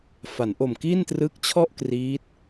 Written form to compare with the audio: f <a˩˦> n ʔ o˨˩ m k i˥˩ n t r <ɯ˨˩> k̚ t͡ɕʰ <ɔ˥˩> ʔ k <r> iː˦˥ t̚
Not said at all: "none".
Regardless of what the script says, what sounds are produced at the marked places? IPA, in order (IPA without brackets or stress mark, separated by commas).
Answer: a˩˦, ɯ˦˥, ɔ˥˩, r